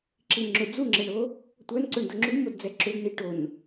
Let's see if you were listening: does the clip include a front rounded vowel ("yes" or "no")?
yes